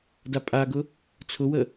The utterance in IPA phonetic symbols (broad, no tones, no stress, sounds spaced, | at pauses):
d a pʼ a ɡ ʊ | t͡sʰ ʊ w ə